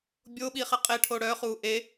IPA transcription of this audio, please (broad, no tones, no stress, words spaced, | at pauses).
bʲo ɓiχɛqʼeʈʰo ɽœχuː ʔe